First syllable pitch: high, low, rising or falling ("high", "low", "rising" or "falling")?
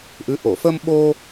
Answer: rising